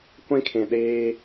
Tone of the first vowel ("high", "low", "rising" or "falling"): high